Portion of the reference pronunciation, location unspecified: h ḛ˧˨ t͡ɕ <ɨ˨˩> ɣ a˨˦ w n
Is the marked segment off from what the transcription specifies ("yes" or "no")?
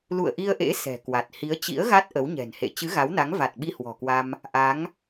yes